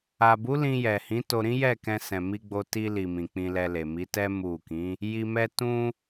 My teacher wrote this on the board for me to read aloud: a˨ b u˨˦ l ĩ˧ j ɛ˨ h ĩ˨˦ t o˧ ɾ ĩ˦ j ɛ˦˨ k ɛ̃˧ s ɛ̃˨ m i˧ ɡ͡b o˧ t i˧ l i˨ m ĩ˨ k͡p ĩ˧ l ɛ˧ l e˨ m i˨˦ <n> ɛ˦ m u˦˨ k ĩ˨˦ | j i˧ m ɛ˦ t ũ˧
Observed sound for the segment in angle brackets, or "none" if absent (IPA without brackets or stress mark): t